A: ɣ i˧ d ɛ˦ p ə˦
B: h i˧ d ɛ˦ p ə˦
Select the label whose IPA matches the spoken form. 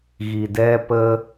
A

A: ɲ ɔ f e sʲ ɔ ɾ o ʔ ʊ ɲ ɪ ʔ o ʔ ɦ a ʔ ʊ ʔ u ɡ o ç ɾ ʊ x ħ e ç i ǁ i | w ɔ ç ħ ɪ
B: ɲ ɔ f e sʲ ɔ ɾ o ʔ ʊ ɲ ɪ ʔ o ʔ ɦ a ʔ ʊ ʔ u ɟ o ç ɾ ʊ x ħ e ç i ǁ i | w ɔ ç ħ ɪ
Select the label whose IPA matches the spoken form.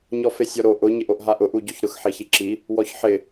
B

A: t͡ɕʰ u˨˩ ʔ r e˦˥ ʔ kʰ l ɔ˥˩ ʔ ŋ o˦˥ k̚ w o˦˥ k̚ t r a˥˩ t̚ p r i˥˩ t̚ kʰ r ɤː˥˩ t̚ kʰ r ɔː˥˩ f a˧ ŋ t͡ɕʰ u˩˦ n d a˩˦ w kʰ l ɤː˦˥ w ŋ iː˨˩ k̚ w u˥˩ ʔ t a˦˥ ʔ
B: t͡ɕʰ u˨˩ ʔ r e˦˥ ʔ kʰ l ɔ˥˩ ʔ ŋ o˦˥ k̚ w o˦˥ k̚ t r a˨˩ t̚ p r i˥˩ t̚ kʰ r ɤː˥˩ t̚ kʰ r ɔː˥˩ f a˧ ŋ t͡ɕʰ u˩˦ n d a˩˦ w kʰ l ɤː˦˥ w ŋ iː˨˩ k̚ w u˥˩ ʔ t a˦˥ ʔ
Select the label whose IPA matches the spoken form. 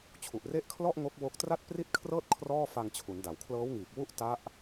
A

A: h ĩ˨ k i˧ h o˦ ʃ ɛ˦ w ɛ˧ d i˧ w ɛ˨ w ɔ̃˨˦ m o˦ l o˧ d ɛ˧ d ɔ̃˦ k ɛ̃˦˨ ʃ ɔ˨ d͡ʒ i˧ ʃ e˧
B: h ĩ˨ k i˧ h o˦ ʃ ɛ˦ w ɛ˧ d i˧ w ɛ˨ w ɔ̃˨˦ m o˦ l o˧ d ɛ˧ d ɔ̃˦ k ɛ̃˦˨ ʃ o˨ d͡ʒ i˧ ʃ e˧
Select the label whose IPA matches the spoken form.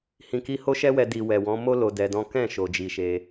B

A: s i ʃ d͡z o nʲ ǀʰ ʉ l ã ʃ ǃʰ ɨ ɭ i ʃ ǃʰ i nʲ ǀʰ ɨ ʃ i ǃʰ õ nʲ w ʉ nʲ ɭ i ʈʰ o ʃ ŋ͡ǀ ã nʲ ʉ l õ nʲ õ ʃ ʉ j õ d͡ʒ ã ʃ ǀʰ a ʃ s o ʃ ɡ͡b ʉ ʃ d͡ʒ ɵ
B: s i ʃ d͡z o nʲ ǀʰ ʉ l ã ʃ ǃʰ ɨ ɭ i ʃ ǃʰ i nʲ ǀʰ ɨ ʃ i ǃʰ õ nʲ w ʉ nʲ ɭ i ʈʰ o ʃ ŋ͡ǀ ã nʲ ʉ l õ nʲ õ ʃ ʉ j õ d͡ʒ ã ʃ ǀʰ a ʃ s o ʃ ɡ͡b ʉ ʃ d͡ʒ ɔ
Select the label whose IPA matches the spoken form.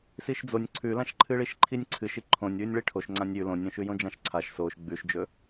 A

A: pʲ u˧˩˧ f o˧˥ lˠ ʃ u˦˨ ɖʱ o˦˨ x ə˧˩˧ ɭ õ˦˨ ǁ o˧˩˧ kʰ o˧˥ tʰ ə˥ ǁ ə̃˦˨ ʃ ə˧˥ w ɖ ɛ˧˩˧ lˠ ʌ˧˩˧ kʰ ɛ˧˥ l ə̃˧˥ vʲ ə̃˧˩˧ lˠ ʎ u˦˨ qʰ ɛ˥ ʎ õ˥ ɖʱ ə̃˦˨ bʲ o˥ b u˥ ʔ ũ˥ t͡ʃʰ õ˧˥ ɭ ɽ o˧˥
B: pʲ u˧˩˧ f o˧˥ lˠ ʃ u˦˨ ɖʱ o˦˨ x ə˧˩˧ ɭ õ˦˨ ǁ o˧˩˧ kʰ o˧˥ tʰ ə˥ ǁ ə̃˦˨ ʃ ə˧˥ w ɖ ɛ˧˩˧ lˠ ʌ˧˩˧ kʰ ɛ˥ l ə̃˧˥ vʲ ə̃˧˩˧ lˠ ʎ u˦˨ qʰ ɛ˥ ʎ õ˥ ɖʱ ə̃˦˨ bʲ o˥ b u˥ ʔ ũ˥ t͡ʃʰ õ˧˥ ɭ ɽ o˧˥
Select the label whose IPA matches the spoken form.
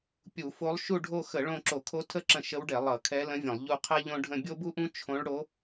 A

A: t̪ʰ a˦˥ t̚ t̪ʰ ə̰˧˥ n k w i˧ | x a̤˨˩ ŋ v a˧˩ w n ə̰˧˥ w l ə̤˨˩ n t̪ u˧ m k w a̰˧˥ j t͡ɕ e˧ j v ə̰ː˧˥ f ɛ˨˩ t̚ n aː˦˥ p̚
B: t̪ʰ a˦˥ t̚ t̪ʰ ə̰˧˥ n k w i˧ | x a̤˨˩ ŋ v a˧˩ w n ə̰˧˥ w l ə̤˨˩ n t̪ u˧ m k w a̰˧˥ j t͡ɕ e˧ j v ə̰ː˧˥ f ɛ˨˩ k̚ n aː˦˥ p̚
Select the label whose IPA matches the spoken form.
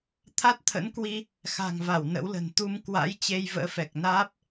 B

